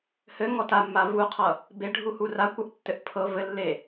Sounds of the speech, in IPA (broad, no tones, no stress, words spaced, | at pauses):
hɘŋɔ tamːa vuqʰʌ | beɖʱuhur akʷʌʔtːɘʔ pʰɤ vɘlːe